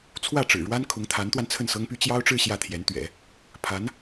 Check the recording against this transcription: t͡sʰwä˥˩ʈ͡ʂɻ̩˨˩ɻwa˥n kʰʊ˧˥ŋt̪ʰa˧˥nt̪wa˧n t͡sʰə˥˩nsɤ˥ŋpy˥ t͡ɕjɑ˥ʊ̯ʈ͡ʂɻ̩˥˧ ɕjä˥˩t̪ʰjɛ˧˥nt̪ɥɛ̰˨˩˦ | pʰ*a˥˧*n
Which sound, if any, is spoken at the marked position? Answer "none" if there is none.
a˧˥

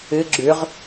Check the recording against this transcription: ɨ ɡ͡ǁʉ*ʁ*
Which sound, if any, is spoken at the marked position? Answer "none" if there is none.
ʁ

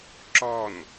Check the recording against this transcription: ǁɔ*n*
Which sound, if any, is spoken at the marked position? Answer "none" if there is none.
n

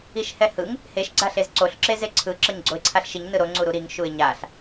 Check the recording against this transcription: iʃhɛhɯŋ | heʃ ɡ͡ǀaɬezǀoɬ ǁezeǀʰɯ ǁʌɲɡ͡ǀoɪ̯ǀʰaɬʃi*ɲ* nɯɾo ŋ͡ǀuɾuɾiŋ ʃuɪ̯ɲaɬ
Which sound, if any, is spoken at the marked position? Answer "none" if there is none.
ɲ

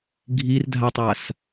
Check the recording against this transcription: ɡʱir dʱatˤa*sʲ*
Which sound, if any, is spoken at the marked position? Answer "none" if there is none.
s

